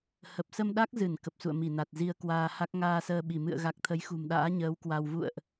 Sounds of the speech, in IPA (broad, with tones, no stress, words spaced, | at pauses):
hə˨˩p̚sə˧mɗa˦˥k̚zɨ˧˩n kə˨˩p̚sṵ˧˨ə̯mi˧˩na˨˩t̚ zi˧ə̯kwaː˧ ha˦˥k̚ŋaː˧səː˧ɓi˧˩ mɨ̰˧˨ə̯ɣa˨˩k̚ t̪ʰə˨˦jxṳ˨˩mɗa̰ː˧˥ɲəː˨˦w kwa˧w vṵ˧˨ə̯ʔ